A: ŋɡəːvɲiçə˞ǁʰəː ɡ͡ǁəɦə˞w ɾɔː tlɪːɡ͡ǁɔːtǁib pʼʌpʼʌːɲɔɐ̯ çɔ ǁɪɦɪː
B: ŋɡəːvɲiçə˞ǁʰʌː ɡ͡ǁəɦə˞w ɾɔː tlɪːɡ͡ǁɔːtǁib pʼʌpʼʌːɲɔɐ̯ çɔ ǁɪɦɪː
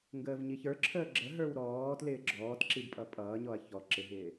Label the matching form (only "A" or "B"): A